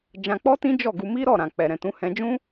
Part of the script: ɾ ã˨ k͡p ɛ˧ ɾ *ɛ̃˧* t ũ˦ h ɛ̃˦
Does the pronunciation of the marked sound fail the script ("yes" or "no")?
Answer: no